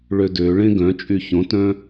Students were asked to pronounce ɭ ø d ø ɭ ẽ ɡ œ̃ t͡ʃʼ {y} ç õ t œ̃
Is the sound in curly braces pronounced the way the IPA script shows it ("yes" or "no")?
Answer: yes